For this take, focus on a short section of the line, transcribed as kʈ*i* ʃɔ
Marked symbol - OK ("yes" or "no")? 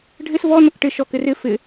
no